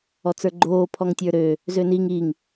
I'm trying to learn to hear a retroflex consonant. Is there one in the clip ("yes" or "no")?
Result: no